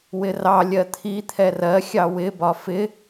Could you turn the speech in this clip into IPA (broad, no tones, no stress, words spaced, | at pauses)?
wɪrɑ lʲɜt̪ʰi t̪ʰɛrɜ xʲɑwɪ bɒfɪ